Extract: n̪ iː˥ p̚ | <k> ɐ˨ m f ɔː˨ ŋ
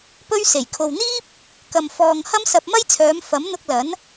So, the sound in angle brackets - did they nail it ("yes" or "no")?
yes